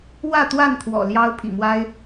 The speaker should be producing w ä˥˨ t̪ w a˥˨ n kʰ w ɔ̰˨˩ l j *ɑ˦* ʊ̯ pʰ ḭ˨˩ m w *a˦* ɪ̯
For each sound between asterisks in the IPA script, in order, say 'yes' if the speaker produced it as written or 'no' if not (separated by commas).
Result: yes, yes